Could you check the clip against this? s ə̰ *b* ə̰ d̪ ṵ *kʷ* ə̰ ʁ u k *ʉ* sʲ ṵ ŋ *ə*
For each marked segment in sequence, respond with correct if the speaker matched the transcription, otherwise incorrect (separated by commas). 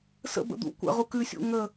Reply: correct, correct, correct, correct